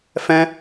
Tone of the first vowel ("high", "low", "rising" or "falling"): high